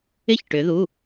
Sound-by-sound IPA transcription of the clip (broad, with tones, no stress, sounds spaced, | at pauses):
ɪ˥˧ ç ʈ ʏ˧˥ ð u˧˥˧